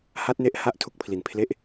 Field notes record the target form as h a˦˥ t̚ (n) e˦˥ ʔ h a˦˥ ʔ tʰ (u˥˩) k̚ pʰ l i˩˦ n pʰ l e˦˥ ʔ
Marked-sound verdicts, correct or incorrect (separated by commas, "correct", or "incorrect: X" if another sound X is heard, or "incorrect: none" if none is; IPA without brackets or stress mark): correct, incorrect: u˦˥